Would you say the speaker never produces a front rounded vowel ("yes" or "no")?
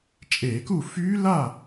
no